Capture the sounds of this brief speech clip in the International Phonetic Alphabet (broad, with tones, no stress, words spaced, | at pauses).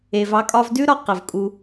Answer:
e˨vɑ˧kʼɒ˧v dʉ˦ɾɒ˧ qə˨vkʼu˧